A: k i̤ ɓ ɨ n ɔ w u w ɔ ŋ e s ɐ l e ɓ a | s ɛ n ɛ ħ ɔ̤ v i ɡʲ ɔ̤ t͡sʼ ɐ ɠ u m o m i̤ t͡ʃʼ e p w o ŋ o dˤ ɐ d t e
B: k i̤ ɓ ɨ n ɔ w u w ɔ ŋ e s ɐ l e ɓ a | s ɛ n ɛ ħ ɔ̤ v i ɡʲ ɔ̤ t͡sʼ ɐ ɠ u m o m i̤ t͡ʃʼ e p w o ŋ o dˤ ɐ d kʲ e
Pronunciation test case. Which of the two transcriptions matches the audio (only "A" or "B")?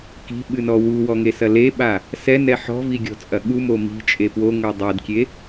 B